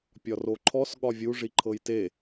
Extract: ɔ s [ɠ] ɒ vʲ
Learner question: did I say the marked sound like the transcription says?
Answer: yes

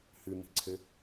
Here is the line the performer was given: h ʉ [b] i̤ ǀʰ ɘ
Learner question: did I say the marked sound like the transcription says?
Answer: no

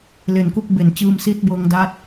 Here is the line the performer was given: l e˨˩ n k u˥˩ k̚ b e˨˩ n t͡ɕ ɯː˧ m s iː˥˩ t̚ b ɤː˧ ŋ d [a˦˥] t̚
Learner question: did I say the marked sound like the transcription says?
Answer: yes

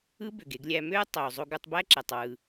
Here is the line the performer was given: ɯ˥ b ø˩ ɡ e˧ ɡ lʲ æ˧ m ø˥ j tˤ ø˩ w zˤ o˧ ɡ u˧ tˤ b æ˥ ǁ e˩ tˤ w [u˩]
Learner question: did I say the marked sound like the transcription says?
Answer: no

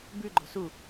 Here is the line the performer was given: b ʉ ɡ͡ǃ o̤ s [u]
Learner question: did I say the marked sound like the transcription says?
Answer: yes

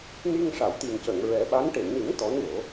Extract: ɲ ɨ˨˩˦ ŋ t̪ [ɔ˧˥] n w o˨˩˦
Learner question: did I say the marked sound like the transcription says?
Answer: yes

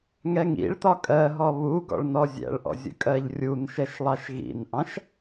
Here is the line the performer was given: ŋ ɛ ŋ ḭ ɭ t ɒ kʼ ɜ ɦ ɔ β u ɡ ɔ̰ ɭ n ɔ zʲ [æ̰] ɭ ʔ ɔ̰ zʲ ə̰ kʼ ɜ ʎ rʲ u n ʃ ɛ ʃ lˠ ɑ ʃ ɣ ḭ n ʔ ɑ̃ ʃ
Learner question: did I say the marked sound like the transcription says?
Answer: yes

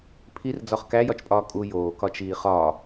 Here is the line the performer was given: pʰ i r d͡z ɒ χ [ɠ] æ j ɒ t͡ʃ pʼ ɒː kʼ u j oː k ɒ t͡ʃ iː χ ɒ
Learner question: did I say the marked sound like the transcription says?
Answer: no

